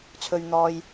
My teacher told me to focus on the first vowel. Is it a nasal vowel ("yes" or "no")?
no